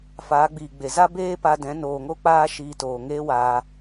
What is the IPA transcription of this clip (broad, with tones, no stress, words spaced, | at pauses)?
faː˨˦ɡ͡biː˨ɡ͡be˨ za˦ beː˦pa˧dɛ̃˨˦ noː˨ŋo˦ k͡paː˦ʃiː˧toː˨ ŋeː˦ waː˧